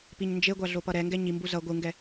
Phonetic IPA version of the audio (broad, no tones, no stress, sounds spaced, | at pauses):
p i ɲ n d͡ʒ e ɡʷ a ɮ o p ʌ ɾ ɛ ŋ ɡ ɛ ɲ i m b u z ʌ ɡʷ ɯ ŋ ɡ ɛ